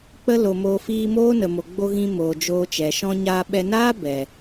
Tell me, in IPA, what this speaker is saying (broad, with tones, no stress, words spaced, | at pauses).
k͡pə˧lo˨moː˨ fiː˧moː˦nə˨mo˨ ɡ͡bo˧ɣĩ˧ moː˨d͡ʒoː˧t͡ʃɛ˨ ʃɔ̃˧ɲaː˧ɓɛ˧ naː˦ bɛ˨